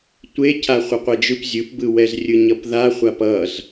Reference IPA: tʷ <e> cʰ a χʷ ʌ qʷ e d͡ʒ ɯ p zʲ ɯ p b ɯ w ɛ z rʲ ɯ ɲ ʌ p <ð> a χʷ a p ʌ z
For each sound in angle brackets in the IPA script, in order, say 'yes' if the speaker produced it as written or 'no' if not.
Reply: yes, yes

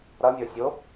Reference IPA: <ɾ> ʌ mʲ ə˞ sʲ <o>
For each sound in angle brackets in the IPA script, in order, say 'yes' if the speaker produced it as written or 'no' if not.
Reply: yes, yes

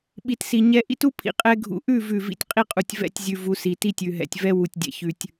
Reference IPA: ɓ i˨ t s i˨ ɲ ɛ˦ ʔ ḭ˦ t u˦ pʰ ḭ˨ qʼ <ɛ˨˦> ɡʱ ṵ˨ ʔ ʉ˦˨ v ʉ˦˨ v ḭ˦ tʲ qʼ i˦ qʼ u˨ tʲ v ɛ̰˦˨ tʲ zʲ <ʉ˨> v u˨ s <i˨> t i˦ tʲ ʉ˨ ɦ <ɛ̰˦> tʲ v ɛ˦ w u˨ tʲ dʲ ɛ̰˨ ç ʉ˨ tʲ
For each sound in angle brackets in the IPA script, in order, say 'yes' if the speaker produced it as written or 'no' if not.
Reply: no, yes, yes, no

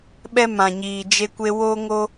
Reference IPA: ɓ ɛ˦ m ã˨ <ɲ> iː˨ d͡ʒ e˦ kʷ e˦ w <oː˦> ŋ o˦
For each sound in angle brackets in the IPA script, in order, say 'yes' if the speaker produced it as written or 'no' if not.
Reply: yes, yes

